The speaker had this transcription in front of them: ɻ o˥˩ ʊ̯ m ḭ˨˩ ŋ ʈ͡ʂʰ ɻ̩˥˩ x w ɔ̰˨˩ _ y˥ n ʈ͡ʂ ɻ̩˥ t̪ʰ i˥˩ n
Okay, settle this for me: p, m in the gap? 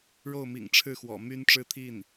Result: m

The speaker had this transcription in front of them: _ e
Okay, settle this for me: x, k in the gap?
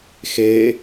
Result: x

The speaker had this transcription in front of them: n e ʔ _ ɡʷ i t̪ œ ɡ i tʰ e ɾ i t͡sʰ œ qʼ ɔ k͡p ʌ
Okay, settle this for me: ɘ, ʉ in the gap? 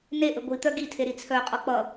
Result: ɘ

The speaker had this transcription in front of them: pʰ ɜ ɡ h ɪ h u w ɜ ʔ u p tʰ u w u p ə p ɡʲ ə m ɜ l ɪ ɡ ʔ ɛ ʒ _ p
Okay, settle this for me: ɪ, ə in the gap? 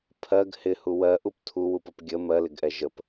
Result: ə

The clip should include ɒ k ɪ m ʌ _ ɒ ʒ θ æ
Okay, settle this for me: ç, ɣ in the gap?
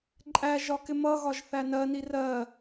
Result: ɣ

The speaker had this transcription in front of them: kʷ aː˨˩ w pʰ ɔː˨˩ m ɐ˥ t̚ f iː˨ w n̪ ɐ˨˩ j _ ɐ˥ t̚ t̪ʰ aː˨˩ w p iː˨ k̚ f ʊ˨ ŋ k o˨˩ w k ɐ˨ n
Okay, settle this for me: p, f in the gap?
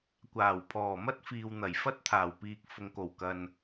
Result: f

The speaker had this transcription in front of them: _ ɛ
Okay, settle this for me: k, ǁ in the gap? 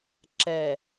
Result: ǁ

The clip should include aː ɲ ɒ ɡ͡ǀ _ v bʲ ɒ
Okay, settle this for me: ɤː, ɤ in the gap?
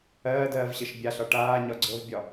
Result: ɤ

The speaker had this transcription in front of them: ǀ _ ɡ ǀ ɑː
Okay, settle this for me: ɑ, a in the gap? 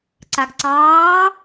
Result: a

